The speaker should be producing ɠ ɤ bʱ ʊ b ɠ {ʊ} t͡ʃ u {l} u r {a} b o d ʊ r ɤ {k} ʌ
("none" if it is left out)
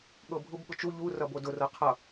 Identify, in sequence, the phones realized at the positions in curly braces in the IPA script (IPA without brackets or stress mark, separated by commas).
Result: ʊ, ʎ, ʌ, qʰ